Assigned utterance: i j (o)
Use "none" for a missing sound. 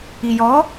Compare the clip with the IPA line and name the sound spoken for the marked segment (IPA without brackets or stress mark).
ɔ